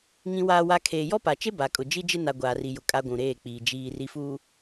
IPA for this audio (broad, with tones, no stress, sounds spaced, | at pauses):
ŋ ĩ˦ w aː˦ w a˦ kʰ eː˨ j ɔ˦ p a˨ t͡ʃ e˦ b a˨ kʼ ʊ˨ d͡ʒ i˦ d͡ʒ ɪ˦ n a˦ ɡʷ aː˨ r i˨ j ʊ˨ kʼ a˦ ɡʷ ũ˨ ɾ eː˦˨ k͡p iː˨ d͡ʒ iː˨ r i˨ f uː˨